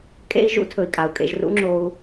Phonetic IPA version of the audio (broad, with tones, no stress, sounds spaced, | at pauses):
kʼ ḛ˦ i̯ ʒ ṵ˦ tʰ ɵ˨ i̯ kʼ a˨ u̯ kʼ ḛ˧ ʒ r ṵ˦ ŋ͡ǁ o˦ u̯